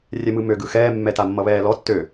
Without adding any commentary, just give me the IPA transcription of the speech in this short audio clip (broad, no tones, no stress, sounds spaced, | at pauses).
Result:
rʲ ɛ m ɯ m ø ɡ ɯ x ɛː mː ɛ t a mː ʌ β ɛː l ɔ tː ø